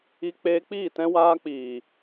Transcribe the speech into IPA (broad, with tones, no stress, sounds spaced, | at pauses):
i˧ k͡p eː˧ k͡p iː˦˨ t ɛ̃˧ w aː˧ k͡p iː˨